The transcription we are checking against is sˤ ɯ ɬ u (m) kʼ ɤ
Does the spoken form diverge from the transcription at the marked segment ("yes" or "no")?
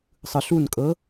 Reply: yes